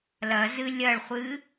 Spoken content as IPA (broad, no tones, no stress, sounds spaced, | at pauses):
l ɐ z ɨ lʲ ɐ ɭ χʷ ɨ